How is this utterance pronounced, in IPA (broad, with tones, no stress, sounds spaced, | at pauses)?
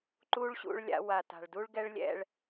ǃ u˦ ɭ ɕ ṵ˦˨ ɭ lʲ a̰˧ w a˨ t a̤˨ ɭ d u˦ ɭ ɡ ɛ˦ ɭ lʲ ɛ̰˦˨ ɭ